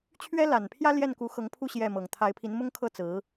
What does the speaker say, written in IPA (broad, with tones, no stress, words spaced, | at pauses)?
t͡ɕʰɥɛ˥la˨˩npʰjä˥ ljɛ˥˩nku˧˥xɤ˧˥ŋpʰu˥˧ ɕjɛ˥˩mɤ˨˩ŋ t̪ʰa˧˥ɪ̯pʰi˧˥nmʊ˥ŋkʰɤ˥˩ t͡sɹ̩˧˥